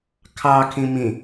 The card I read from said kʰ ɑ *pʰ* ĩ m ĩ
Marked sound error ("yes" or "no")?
yes